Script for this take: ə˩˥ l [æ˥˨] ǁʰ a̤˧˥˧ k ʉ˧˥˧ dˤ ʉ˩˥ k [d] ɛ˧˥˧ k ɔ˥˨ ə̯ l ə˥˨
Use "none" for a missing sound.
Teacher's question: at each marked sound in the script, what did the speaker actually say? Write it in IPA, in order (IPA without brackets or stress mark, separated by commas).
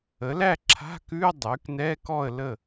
æ˥˨, n